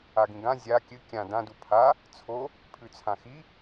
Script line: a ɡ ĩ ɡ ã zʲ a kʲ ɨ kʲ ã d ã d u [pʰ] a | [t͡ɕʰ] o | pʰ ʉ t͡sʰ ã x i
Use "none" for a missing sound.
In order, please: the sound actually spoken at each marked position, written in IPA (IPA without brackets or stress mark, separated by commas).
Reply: pʰ, t͡sʰ